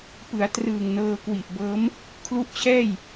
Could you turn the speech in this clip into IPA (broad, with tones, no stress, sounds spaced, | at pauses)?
p ɯ˩˦ a̯ t r ɯː˨˩ ŋ n ɤː˧ k w i˨˩ ʔ b ɤː˦˥ m | kʰ l u˦˥ ʔ t͡ɕʰ ɛː˥˩ j